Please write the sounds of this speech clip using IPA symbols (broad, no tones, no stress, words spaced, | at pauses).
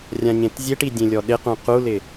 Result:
rʲãɲẽtzʲeʈi dʲẽlʲɔɗɪqũ qulɪ